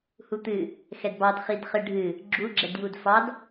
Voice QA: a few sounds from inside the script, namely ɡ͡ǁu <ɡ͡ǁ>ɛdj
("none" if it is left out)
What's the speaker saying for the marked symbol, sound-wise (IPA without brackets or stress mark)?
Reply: ɡ͡ǁ